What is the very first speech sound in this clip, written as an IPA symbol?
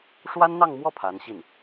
ʂ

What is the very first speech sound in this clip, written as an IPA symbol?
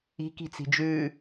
i̤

